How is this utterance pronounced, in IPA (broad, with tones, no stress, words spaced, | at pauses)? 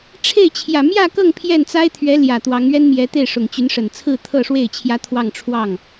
ʈ͡ʂʰe˥˩ɪ̯ t͡ɕʰjä˨˩mjä˥˧kɤ˥˧ŋ pʰjɛ˥˩n t͡sa˥ɪ̯t̪ʰɥɛ˧˥ ljä˨˩t̪wɑ˧˥ŋ ɥɛ˥nmjɛ˧˥t̪e˥˩ɪ̯ ʂʊ˨˩ŋt͡ɕy˧˥nʂə˨˩n t͡sʰɹ̩˥˧t̪ʰɤ˥˧ʂwe˥˩ɪ̯ t͡ɕʰjä˥t̪ʰwɑ˥˧ŋ ʈ͡ʂʰwɑ˥˩ŋ